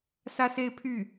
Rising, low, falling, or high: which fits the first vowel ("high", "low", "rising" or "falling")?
falling